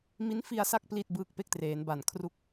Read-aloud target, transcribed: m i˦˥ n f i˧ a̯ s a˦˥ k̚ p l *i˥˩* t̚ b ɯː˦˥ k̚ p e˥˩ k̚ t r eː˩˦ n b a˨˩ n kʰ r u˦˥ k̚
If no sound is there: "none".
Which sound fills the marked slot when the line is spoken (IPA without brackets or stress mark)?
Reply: i˥˩